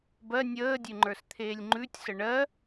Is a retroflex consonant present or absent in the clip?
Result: present